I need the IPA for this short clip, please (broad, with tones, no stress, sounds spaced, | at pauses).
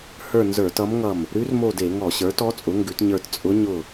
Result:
h ə˞˦˨ n z ə˞˧˩˧ t ʌ˧˥ m ŋ ʌ˦˨ m | ɾ ʉ˧˥ r m o˦˨ d e˧˩˧ ŋ ɔ˧˩˧ ɕ ə˞˩˥ t ɔ˧˥ t͡sʼ ʊ˩˥ ŋ ɡ ʉ˩˥ t ɲ ə˞˦˨ t t͡sʼ ʊ˧˥ ɲ ʊ˦˨